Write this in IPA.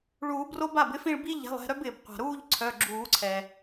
ɭ uː˨˩˦ b r o˦ b a˩˧˩ b ɪ˦ f ĩ˦˨ ɭ b i˦ ʎ ɛ̤˩˧˩ lˠ ɛ̤˦˨ ɾ œ˦ b ɪː˩ b qʷ a̤˩ ɾ uː˦˨ ʎ ǀʰ œ˩˧˩ ɡ͡ǁ uː˨˩˦ ǀʰ ɛ˩

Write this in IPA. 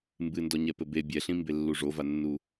m b ɨ n d ɔ ɲ ɛ p ɘ b e bʲ ɛ ɬ ĩ m b e lː u ʐ o v a nː u

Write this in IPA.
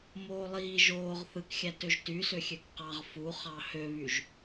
m oː lˠ iː ʒ oː ʁ θ ɯ k xʲ æ t ø ʒ t y s ø xʲ ø k q ɑ ʁ f u χ ɑ h ø β y ʒ

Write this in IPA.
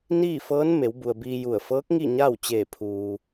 n iː˥˨ f ɤː˧˥ n m e˩˧ w b u˩ ə̯ b iː˧ j u˧˩ ə̯ f ɤː˧˥ k̚ ŋ i˥˨ ɲ aː˥˨ w t͡ɕ eː˧˩ pʰ uː˩

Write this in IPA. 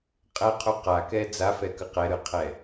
qʼ ɛ qʰ u q a k ɛ d͡z a f ɛ k ɯ q ɛ ɾ ɯ qʰ ɛ

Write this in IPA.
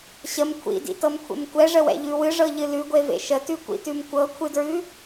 ɕ ə m kʷʰ ḭ d ḭ t ɤ m kʷʰ ḛ m kʷ ɛ ʐ ə w ɛ̰ ʎ ʉ w ɨ ʐ ɤ ʎ ɨ l ʉ ɡʷ e v ḛ ʃ ə t ʉ kʷ ḭ t ʉ m kʷ ɤ kʷʰ ɨ d ɹ ʉ

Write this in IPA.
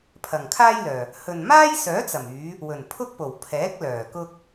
pʰ ɐ˨˩ ŋ kʰ aː˥ j l œː˨˩ | h ɵ˨ n m aː˥ j s œː˨˥ t͡s ɐ˨˩ m yː˨˧ | w ɵ˨˩ n pʰ ʊ˥ k̚ p o˨˩ w pʰ ɛː˨˥ k̚ l œː˨˩ k ʊ˥ k̚

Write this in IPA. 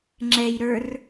ŋ͡ǁ ɛ j ɾ ə˞ r

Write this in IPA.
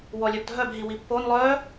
w ɔ lʲ œ b dʱ œ b ɦ i w i pː o n lˠ œ

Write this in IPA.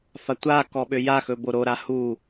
f a tʷ a k ɔ ɓ ø j a x ɵ b o ɾ o ɾ a h u

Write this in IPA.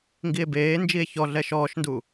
ŋ ɡ i e̯ b eː n d͡ʒ i e̯ ç ɔ ɮ ɛ ʃ ɔː ʃ n d u

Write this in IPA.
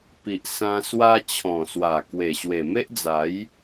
p i˨ ʔ s ã˧ s w a˧ t͡ɕʰ ɔ̃˨˩ s w a˨˩ k w e˨˩ ɕ w e˨˩ m e˦ ʔ d͡z a˨˦ j

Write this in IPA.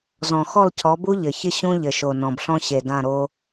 z ɔ̃˨ x ɔ˦˨ l cʰ ɔ˨˦ b u˦ ʎ ɘ˨ ç ɪ˦ ɕ ũ˦ ʎ ɘ˨ ʃ o˨ n ɔ̃˨ b ɬ ɔ̃˦ ɕ e˨ d ã˦˨ ɾ o˦

